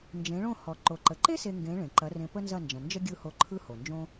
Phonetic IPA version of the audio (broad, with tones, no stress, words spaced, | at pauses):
nd͡ʒẽ˩˥ɭõ˥˩ hɔ˩ ǃo˩ǃə˩ǃe˥ se˧ŋɡẽ˩˥ ɭẽ˩ǃɐ˩˥rẽ˧ pə˥nzɐ˥˩nd͡ʒɐ̃˩ nd͡ʒə˥ɡʲɯ˥˩ ho˥˩ǃʰɯ˥ho˩ nd͡ʒõ˥